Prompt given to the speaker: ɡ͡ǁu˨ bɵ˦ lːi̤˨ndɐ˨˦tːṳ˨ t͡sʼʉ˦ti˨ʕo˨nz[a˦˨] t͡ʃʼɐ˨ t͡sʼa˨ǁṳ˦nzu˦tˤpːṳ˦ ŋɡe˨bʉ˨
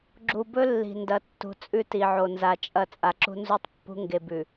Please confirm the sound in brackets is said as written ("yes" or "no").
no